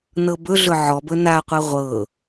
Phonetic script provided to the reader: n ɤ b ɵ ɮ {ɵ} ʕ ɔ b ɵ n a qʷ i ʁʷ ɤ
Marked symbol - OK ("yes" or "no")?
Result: yes